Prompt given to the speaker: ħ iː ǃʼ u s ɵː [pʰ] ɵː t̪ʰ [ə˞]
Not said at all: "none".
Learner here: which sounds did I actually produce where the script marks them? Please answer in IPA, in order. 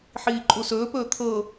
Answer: p, ɤ

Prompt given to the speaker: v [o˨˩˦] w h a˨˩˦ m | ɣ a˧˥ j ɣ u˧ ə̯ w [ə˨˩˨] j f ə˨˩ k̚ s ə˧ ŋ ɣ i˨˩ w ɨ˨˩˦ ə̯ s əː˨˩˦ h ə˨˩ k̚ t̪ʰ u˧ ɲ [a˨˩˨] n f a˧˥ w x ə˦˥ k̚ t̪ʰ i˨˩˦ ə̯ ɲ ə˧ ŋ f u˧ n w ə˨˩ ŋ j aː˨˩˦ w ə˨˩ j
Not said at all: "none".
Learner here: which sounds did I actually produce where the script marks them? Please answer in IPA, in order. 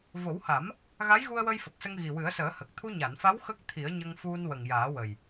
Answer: o˨˩˦, ə˧, a˨˩˨

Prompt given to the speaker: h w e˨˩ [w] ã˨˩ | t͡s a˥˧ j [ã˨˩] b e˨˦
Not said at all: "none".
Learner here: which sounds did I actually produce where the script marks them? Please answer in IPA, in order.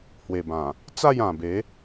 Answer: b, ã˨˩

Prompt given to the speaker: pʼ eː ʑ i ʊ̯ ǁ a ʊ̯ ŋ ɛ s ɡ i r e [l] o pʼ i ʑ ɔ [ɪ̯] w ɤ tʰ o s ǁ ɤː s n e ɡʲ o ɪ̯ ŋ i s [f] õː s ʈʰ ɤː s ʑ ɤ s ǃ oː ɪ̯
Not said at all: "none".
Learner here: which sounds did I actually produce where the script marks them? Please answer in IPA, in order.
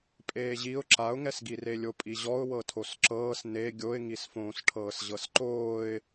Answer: lʲ, ʊ̯, f

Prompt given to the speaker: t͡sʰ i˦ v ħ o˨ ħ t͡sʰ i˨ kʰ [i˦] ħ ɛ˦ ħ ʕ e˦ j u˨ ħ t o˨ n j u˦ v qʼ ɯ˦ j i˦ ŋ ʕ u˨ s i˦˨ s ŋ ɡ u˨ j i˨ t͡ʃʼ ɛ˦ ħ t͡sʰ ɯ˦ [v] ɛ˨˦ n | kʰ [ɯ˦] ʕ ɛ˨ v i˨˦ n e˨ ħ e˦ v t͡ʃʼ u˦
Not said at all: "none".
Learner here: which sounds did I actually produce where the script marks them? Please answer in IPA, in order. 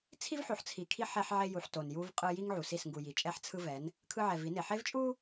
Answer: i˦, v, ɯ˦

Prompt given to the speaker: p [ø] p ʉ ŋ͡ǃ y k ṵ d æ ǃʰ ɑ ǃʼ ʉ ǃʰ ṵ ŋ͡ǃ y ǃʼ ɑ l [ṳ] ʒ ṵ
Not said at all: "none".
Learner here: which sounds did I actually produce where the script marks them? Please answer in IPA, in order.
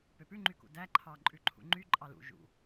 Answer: ø, ṵ

